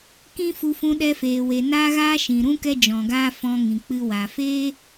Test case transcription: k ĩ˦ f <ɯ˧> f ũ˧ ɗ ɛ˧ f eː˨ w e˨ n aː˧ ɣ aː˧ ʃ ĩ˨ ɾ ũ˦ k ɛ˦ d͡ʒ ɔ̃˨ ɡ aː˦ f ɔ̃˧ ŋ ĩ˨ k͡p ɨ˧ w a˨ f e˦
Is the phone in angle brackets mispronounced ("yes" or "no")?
yes